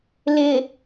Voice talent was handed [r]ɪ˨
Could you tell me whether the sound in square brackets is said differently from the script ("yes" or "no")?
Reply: yes